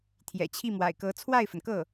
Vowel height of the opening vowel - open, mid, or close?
mid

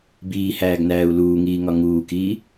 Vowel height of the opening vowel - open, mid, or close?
close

